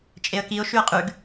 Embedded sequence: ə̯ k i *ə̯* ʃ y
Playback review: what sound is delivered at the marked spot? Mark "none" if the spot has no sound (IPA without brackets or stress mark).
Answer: ʊ̯